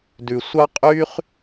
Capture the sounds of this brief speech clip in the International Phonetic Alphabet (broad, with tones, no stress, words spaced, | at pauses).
dʉ˩sʷɑ˥qʼy˥χ